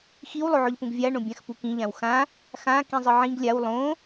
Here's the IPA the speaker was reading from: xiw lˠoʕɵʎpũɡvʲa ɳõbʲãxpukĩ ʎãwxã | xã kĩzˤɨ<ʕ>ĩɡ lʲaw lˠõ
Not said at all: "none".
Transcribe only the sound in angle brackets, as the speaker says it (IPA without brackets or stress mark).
ʕ